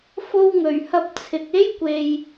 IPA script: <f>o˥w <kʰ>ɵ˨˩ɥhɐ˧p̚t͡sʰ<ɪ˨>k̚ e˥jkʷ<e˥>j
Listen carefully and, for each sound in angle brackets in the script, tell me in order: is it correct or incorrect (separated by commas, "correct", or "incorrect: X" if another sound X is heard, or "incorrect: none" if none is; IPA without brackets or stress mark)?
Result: correct, incorrect: ŋ, correct, incorrect: e˨